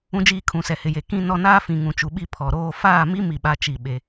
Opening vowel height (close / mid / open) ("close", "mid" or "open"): close